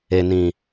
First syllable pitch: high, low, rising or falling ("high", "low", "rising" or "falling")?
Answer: low